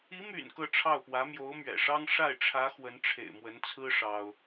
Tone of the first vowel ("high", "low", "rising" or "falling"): rising